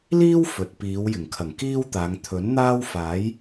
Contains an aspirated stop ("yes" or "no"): yes